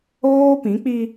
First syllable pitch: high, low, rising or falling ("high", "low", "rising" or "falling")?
high